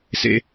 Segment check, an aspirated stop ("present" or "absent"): absent